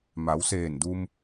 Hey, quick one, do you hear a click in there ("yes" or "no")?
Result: no